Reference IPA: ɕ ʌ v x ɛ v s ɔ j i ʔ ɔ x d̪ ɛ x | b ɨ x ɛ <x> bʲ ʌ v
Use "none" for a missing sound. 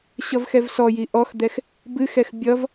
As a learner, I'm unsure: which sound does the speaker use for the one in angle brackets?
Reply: x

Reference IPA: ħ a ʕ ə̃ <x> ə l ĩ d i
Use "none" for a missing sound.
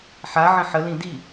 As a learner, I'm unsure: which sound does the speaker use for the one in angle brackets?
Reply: ħ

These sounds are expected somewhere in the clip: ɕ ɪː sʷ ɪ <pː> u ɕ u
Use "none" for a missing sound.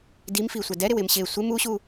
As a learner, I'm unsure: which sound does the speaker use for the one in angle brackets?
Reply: m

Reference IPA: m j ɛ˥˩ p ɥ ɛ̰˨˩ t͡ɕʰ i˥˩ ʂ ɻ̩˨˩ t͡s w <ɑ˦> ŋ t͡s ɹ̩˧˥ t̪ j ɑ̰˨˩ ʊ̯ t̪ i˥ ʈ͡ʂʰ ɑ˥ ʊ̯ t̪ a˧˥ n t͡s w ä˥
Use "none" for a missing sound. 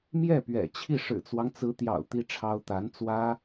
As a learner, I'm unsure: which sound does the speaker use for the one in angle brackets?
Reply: ɑ˦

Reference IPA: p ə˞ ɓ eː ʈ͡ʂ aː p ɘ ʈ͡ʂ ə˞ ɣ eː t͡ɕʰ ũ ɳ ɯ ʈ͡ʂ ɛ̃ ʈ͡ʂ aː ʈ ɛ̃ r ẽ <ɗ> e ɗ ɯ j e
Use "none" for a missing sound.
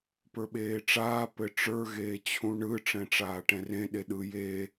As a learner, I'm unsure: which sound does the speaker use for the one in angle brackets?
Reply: ɗ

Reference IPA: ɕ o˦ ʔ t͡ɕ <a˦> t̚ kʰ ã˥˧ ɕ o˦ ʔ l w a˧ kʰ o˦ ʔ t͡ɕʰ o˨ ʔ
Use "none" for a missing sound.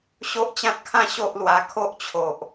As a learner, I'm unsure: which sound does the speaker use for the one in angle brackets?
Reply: ã˦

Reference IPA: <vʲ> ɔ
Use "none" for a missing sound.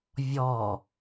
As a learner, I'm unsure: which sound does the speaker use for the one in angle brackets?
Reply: vʲ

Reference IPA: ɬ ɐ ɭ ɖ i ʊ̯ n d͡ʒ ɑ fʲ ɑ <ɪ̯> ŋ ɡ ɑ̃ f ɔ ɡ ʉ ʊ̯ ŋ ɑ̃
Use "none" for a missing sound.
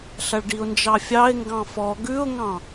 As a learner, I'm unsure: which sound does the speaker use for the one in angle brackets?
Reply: ɪ̯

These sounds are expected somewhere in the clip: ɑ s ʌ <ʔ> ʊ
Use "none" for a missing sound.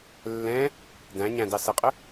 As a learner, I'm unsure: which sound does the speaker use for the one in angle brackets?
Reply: qʼ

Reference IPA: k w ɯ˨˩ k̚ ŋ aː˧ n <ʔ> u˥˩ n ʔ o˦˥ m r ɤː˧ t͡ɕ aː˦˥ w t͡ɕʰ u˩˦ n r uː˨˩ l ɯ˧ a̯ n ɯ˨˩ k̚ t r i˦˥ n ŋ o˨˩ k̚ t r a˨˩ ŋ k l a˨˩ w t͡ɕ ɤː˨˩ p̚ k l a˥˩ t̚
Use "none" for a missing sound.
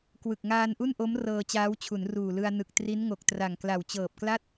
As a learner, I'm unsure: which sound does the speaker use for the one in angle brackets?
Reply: ʔ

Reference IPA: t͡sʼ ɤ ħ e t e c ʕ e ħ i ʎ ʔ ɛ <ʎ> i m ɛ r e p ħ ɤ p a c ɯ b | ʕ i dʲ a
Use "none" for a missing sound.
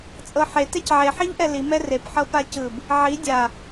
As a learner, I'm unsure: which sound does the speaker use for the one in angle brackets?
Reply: l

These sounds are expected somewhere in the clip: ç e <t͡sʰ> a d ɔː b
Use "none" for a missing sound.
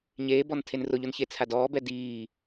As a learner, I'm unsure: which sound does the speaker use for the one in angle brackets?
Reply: t͡sʰ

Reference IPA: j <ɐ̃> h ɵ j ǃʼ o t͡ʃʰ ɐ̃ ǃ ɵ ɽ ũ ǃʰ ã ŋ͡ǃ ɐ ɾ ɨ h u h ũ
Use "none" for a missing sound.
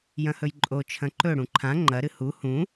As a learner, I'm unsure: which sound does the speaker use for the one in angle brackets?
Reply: ɐ̃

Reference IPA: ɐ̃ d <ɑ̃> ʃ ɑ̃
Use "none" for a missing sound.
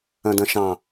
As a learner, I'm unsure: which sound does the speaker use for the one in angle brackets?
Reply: ɐ̃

